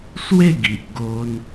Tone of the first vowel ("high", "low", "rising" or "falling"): falling